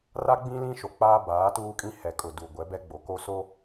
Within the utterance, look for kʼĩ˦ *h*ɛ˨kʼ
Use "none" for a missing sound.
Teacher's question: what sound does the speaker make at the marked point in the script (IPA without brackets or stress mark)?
h